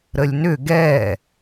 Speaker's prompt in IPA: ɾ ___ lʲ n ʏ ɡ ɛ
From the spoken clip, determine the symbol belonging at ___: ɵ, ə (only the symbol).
ə